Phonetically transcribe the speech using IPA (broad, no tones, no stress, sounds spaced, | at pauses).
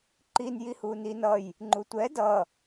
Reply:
ǃ i n j i h u n i n ʌ j | ŋ͡ǃ u tʷ ɛ d ʌ